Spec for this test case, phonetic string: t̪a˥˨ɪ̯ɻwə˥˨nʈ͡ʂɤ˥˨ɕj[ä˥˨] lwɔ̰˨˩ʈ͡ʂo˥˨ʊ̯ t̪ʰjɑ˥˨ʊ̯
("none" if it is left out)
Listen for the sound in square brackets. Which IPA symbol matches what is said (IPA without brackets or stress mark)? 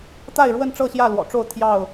ä˥˨